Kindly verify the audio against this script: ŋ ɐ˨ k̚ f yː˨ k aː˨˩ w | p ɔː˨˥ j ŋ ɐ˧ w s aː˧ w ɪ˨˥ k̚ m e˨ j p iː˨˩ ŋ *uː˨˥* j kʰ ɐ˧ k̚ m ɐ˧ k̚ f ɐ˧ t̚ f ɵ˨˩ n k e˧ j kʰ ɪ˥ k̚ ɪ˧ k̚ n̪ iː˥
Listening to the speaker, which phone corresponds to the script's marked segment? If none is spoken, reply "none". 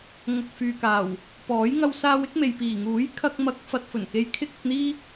uː˨˥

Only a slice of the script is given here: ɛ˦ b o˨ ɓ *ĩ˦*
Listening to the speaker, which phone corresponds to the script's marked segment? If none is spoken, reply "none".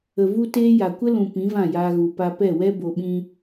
ĩ˧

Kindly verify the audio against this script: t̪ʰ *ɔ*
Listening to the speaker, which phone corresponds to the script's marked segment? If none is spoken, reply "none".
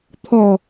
ɔ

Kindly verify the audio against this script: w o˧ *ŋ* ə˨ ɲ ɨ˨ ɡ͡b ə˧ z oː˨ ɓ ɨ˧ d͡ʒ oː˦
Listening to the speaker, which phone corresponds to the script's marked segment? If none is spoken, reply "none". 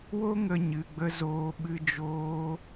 ŋ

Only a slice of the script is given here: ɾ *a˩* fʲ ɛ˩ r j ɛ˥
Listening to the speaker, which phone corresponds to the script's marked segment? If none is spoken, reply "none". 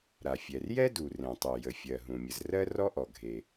a˩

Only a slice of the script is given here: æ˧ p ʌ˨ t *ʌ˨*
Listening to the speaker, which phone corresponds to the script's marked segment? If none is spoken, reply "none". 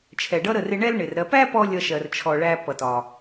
ɒ˨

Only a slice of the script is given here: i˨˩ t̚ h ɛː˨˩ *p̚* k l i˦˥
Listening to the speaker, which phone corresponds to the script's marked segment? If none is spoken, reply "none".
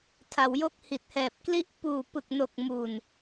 p̚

